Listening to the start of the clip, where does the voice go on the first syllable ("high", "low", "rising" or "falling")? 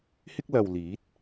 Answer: high